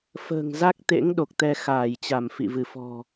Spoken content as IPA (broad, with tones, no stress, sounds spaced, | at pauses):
f ə̤ː˨˩ ŋ z a˦˥ k̚ t̪ ḛ˧˥ ŋ ɗ o˨˩ k̚ t̪ ɛ˧ x aː˧˩ j t͡ɕ a˧˩ m f ḭ˧˨ v ɨ˧˩ f ɔ̤˨˩